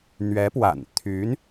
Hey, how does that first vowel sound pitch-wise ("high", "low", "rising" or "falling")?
rising